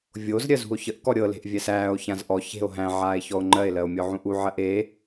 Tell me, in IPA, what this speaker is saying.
vʲozɾʲɜzṳo̯ çəʔkɔ ɾʲɤle̤ʔ vʲæsæːo̯ çãzʔɔ çe̤o̯ ɦæ̃ʕaːe̯ çɔo̯ŋ͡ǃɜe̯lɜo̯ mʲɔʕũʔu ʕɜʔe

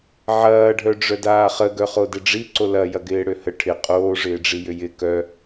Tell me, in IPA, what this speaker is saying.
ʕɐːɖʱœɖ͡ʐœ daːχəɡœ χodɪɖ͡ʐi ǀolɐ jɐɡɪːɽøhə ʈʰɪ qʼoːʐɪːɖ͡ʐi jʏjɪ kœ

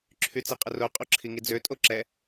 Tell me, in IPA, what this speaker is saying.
ǁʰyt͡siqʼəro qʼoǁʰiŋid͡zø tʼoǁɛ

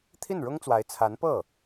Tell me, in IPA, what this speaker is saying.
t̪ʰi˥˩nɻʊ˥ŋt͡swa˧˥ɪ̯ t͡sʰa˧˥npɤ˥˩

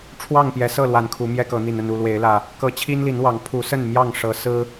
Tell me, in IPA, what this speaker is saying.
ʈ͡ʂʰwɑ˥˨ŋpjɛ˨˦sɤ˥˨lwa˨˩n kʰu˨˦mjɛ˦kɤ˨˦n̪i˨˩n ə˥˨nu˥˨lwe˨˦ɪ̯lä˨˩ | kɤ˨˦ t͡ɕʰi˦nli˨˦nwɑ˨˦ŋ pʰu˨˦ sə˥˨nmjɑ˥˨ŋ ʂɤ˨˦ sɹ̩˦

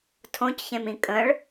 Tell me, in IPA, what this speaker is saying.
tʰõcçẽmĩ kʼə̃ɭ

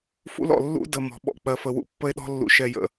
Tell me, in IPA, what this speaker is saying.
fṵ˦l ɔ̰˨ lːṵ˦də˨ mɔ̤˨ɓɔ̰˦ k͡pɜ˨fə˨wṵ˦ pːə˦e̯ɗɔ̤˦lːṵ˨ ʃɛ˨jə̰˨

